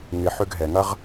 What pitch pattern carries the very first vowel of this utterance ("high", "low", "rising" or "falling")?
low